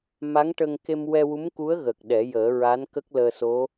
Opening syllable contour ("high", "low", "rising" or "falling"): rising